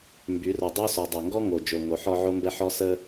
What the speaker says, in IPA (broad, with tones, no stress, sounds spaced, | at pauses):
m b y˨˦ r o˨ dˤ o˦ s ɔ˨ dˤ o˨ ŋ ɡ ɔ˦ ŋ o˨ d͡ʒ o˨ ŋ o˨˦ ħ ɔ˦ ʕ o˦ m b ɛ˦ ħ ɔ˦ s ə˦